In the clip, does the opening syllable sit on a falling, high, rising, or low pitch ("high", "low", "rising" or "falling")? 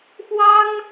high